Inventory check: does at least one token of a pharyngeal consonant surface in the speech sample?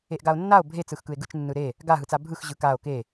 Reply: no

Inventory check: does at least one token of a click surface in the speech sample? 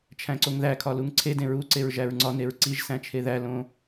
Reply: yes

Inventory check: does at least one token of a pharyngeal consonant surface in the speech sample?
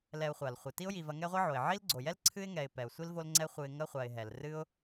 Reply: yes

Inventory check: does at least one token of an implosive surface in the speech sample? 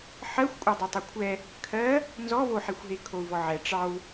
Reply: no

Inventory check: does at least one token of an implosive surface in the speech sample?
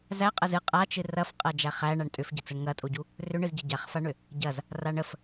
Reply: no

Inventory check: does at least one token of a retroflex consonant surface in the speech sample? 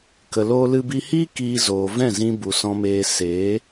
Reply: no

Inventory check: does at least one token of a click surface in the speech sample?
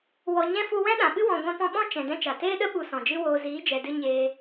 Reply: no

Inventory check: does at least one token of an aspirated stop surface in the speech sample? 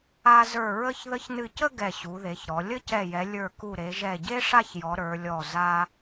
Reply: no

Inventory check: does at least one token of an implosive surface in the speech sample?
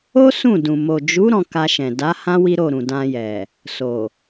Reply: no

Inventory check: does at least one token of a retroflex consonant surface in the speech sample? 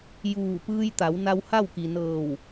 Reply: no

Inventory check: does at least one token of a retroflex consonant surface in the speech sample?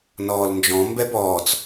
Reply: no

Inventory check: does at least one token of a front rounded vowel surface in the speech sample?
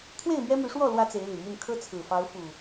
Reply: yes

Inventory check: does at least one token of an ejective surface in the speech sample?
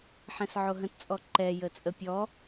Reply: yes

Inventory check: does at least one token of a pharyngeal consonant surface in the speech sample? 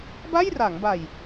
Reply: no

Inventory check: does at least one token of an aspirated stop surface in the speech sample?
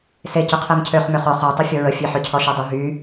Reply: yes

